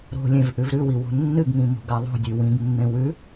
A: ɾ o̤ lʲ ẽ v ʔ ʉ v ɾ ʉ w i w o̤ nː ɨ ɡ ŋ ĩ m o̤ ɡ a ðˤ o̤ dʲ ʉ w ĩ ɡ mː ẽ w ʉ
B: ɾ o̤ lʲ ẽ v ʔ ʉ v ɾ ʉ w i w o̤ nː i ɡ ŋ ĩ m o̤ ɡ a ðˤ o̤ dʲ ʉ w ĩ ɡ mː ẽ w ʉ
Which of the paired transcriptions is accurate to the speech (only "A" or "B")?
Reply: A